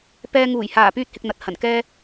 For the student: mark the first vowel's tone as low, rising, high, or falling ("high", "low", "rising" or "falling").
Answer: high